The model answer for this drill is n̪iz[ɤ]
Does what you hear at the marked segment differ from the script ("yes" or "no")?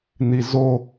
yes